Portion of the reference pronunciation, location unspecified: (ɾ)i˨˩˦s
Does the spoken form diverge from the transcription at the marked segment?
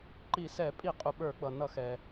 yes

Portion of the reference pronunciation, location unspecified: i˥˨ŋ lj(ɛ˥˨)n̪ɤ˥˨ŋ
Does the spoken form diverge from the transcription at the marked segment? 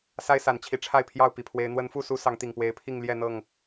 no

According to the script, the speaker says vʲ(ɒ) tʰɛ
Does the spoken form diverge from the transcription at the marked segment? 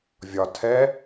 no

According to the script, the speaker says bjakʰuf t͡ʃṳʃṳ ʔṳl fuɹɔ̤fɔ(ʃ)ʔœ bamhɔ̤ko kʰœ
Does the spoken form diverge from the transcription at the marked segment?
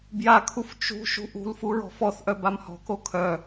yes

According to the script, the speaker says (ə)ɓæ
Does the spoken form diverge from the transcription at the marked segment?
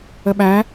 no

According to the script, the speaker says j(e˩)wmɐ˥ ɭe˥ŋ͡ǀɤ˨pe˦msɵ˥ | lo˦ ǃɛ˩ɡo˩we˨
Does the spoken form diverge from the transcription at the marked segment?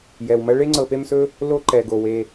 yes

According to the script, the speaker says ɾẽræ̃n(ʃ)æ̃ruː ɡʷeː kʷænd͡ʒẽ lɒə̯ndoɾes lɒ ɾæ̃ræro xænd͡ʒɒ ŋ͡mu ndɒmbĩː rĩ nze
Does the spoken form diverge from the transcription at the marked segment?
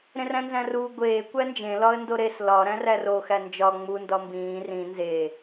yes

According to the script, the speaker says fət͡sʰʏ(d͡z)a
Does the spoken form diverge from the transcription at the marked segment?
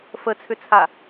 yes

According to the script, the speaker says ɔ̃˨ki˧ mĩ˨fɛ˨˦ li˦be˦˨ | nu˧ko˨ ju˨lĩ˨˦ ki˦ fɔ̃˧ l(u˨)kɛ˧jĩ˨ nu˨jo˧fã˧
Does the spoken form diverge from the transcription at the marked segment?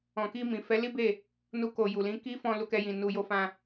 yes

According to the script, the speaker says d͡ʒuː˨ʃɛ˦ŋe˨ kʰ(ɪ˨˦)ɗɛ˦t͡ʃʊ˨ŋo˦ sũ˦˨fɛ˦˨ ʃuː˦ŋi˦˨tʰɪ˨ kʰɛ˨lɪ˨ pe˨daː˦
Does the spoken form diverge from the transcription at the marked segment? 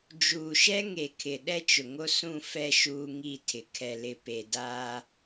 yes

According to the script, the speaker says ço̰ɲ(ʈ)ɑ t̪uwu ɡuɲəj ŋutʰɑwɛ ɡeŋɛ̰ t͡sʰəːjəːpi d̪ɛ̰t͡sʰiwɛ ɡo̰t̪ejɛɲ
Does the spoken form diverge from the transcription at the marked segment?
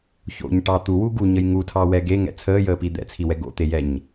no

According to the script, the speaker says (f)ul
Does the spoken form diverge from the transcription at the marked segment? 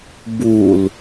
yes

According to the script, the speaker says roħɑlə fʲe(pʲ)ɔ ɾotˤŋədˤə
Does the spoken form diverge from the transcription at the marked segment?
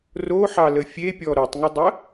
no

